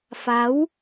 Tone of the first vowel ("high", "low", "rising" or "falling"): rising